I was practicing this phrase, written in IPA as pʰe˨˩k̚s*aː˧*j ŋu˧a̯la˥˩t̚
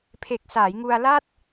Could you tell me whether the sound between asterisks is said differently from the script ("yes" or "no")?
yes